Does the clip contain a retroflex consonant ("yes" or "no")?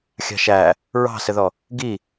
no